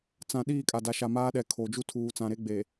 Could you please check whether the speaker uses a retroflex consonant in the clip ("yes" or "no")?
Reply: no